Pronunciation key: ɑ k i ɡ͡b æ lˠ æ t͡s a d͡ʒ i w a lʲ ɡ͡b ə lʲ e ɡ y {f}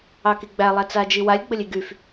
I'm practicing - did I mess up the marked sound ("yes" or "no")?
no